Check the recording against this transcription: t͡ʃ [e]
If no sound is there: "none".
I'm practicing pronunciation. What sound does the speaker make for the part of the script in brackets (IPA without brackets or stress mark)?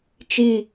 i